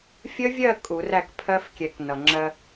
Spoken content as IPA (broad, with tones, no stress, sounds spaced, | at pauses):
fʲ ə˦˥ vʲ ɜ˥˨ kʼ u˨˩˦ r æ˥˨ k pʰ ɜ˦˥ f kʲ ɛ˨˩˦ k n ʌ˩ ŋ͡ǁ ɜ˧